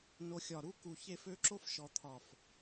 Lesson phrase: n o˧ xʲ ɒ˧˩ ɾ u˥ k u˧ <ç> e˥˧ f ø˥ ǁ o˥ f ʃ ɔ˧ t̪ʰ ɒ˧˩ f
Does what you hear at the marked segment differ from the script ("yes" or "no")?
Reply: no